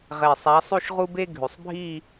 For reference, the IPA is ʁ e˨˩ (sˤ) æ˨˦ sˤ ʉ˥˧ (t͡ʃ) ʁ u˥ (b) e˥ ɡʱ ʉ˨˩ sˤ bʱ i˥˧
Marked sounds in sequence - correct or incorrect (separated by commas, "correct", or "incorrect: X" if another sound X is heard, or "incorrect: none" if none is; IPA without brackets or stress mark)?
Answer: correct, incorrect: ʃ, correct